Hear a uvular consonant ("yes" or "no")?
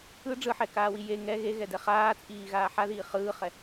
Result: yes